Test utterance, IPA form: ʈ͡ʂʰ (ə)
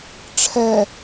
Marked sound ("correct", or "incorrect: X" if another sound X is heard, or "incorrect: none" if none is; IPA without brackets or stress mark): incorrect: ɛ